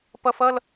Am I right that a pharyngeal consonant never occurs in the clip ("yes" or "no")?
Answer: yes